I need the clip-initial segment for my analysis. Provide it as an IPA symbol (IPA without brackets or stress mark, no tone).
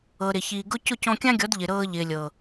ɤ